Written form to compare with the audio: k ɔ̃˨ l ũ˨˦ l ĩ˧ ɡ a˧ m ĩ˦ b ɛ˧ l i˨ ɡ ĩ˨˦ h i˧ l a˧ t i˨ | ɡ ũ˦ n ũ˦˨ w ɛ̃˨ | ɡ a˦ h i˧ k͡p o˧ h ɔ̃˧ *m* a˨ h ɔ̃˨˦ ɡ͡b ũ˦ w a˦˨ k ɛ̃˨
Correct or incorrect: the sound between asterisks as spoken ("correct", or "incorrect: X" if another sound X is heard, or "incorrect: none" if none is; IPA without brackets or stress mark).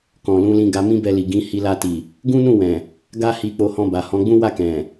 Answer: incorrect: b